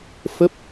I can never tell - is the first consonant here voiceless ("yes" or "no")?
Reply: yes